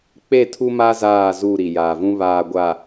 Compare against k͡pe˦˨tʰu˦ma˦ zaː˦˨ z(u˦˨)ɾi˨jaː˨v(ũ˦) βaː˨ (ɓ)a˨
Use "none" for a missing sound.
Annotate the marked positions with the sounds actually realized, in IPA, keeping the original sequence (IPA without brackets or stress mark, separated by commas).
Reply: u˦˨, ũ˦, ɡʷ